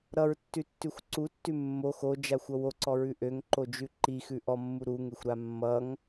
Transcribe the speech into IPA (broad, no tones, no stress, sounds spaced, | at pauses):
ɾ ʌ ɹ tː ʉ tː ʉ xʷ ǀ u tː ʉ mː o x o d͡ʒ a xʷ ʌ w o ǀ ɔ ɹ ʉ ʔ ø ŋ ǃ o d͡ʒ ʉ ǃ i x ʉ ʔ ɔ mː u ɾ u ŋ e xʷ ɾ a mː ʌ ŋ